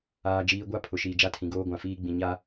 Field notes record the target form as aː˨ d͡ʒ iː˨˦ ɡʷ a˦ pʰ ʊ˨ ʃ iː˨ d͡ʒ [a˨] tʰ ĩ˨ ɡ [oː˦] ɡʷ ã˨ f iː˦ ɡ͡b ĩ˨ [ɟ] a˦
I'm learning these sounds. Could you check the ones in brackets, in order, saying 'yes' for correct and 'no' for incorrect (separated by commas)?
no, yes, no